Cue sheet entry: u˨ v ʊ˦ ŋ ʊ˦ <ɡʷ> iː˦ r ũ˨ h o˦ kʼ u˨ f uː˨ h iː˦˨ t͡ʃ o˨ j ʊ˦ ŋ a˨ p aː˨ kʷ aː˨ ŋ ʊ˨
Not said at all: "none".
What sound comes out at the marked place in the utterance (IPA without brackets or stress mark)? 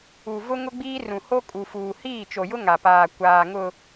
ɡ͡b